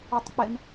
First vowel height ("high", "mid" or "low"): high